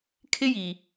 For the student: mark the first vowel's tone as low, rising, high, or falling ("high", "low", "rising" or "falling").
high